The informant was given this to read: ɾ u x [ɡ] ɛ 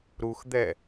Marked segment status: incorrect: d̪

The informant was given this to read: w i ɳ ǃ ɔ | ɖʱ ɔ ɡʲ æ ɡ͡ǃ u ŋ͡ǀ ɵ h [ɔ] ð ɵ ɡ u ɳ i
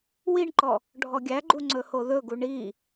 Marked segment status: incorrect: o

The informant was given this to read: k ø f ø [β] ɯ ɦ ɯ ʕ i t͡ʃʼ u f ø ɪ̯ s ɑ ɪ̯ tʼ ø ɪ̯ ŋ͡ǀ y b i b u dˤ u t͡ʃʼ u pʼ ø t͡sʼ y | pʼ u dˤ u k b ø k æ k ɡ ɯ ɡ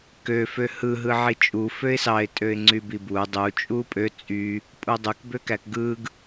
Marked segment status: incorrect: h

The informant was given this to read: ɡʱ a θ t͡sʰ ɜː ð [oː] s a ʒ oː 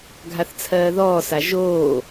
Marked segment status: incorrect: ɔː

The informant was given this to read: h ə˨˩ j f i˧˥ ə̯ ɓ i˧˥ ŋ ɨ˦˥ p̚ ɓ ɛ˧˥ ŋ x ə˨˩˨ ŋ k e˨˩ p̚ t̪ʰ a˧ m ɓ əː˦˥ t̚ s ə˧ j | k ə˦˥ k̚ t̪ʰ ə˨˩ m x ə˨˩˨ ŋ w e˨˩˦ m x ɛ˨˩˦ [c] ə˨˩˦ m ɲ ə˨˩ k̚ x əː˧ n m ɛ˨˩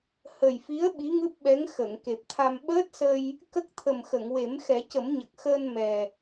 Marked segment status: correct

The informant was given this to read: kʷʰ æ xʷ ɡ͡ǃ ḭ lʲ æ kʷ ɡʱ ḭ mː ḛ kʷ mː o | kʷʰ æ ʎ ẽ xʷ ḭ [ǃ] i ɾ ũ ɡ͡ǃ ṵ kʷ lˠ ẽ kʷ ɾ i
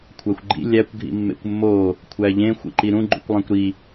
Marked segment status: correct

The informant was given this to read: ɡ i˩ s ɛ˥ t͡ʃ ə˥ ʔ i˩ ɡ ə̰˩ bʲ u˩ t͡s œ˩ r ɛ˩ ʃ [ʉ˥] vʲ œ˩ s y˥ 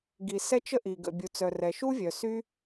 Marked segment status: incorrect: u˥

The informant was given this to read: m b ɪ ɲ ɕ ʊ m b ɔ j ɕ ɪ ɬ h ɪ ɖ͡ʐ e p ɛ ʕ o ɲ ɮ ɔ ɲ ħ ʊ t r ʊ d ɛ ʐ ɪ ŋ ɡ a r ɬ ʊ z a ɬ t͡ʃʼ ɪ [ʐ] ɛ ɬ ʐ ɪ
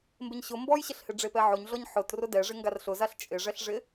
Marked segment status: correct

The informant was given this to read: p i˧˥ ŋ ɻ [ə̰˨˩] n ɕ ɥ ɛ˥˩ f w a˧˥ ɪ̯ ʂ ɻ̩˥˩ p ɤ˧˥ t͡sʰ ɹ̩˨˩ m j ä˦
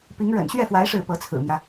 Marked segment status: correct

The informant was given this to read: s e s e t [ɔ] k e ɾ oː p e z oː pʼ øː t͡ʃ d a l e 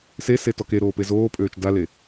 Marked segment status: correct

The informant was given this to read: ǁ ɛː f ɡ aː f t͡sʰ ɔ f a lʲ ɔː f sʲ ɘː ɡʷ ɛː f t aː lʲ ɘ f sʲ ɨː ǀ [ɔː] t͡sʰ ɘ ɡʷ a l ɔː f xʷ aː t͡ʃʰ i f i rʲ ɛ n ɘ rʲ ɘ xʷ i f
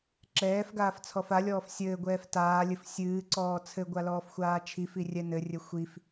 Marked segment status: correct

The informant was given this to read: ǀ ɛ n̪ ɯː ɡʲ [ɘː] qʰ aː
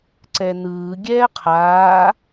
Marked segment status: incorrect: ɛː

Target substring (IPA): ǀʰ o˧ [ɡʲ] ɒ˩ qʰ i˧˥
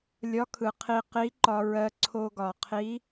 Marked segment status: incorrect: ɡ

